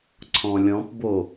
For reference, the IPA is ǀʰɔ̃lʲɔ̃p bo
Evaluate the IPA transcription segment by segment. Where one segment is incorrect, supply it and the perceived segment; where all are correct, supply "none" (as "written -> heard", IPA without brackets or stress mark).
none